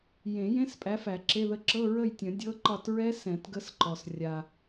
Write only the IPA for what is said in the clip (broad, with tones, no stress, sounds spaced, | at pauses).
j ẽ˨˩˦ j ẽ˧˥˧ s pʼ æ˨˦ f æ˨˩˦ ǁ e˧˥˧ ð ə˥˨ ǁ ɤ˧˥˧ ɹ ə˥˨ j tʲ ə̃˨˩˦ dʲ ɤ˧˥˧ ǃ ɒ˥˨ t ɹ ɛ˦˥ s ɛ̃˨˩˦ t ɡ ə˦˥ s ǃ ɔ˩ s rʲ a˩